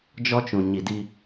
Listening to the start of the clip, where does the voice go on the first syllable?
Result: high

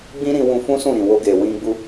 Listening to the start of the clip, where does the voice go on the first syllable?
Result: high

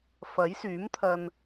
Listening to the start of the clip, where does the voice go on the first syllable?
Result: rising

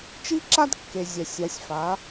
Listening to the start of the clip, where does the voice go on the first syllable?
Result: high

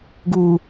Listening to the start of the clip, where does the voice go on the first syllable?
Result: low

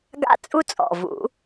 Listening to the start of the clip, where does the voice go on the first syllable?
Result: high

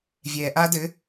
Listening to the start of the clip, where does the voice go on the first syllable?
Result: low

